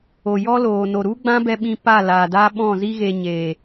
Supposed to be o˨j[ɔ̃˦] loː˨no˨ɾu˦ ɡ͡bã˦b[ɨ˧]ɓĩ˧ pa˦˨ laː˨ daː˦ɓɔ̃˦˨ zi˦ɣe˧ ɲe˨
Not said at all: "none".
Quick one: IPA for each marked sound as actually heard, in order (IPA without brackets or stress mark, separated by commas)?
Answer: ɔ˦, ɛ˧